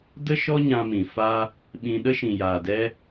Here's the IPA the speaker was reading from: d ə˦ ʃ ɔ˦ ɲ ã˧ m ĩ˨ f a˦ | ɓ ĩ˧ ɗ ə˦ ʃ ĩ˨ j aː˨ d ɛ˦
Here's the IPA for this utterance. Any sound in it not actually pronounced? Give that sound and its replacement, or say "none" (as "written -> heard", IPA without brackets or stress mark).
none